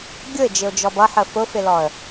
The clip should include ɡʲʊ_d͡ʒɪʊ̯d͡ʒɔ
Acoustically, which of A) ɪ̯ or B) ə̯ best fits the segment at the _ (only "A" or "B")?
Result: A